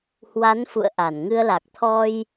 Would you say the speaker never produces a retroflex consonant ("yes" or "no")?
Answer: yes